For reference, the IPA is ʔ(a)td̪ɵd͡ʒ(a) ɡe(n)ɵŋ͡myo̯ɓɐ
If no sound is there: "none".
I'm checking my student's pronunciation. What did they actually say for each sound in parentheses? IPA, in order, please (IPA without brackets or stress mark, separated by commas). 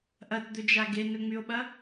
ɐ, a, n